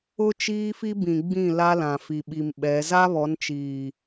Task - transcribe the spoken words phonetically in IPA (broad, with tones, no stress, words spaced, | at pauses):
ʊ˦ t͡ʃiː˦fi˦ bĩ˨ɡ͡bĩ˦˨ la˦lã˨fi˨ɓi˨m ɓɛ˨˦ za˦βɔ˨˦nt͡ʃiː˨